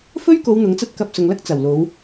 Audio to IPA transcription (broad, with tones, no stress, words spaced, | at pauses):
fɵ˥ɥ ko˨˧w n̪ʊ˨˥ŋt͡sɐ˥t̚kɐ˧p̚ sʊ˨ŋlɐ˥k̚ t͡sɐ˨˩wlo˨˧w